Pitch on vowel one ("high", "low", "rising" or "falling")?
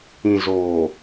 low